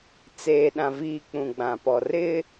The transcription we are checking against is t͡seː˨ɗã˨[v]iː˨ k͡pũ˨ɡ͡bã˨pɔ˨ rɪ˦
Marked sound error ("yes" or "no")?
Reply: no